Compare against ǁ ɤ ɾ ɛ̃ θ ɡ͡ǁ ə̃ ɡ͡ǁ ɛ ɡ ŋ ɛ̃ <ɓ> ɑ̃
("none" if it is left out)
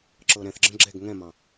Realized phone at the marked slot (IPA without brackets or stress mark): m